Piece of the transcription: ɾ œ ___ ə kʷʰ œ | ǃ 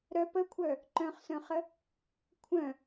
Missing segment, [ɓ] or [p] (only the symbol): p